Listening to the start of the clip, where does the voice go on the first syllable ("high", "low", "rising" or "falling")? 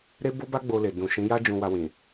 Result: high